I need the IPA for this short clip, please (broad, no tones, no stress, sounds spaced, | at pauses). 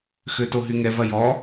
x ø t o ɦ y ŋ ɛ v ɐ j ɔ